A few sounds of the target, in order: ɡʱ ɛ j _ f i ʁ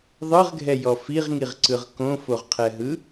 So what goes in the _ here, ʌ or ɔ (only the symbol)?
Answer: ɔ